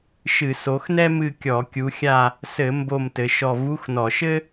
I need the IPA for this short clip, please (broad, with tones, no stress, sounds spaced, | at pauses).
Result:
ʃ ɨ˧˩˧ s o˨˦ x n ɛ˥ m ɨ˦˨ kʲ ɔ˧˩˧ kʲ u˨˦ xʲ a˦˨ | s ɘ˧˩˧ m b o˦˨ m t ɘ˨˦ ʃ ɔ˦˨ v u˧˥˧ x n ɔ˧˩˧ ʃ ɘ˥